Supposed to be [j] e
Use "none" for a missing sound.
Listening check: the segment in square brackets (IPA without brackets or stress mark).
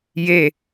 j